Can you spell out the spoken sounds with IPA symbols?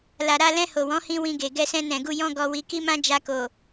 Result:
la˨ɾa˧lɛ̃˧ ho˨wɔ̃˨˦hĩ˧ wĩ˧ɡe˨ ɡɛ˧sɛ̃˧nɛ̃˨ɡu˧ jɔ̃˦ɡɔ˧wi˧ ki˦mã˦ d͡ʒa˧ko˨

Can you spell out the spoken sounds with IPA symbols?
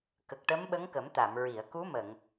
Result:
kə˨˩k̚ʈə˧˥mɓə˧˥ŋ kə˨˩˦mt̪a˨˩˨mɹi˨˩˨ə̯ ku˧˥mə˨˩˨ŋ

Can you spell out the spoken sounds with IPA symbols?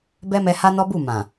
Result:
bɛ˦mɛ˧ ha˦nɔ˦ bu˦˨mã˨

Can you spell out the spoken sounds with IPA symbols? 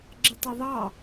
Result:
ɡ͡ǁɪtˤʊðˤɑ

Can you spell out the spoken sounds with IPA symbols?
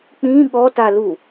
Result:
k͡pĩ ɠɔtalu

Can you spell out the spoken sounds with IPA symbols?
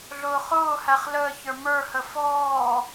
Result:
ɮʊːχʊːhæχ ləː çə˞mə˞hə fɔː

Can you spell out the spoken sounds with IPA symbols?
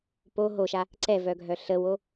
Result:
po ɦoʃa | ǀɛvœɡʱœ ɬəwo

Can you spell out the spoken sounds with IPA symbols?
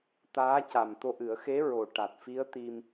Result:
t̪aː˧˥ca˨˩mt̪o˧ʔɨ˨˩˦ə̯ xe˧˥ɹo˨˩ ʈa˨˩t̚fi˧˥ə̯ t̪i˧m

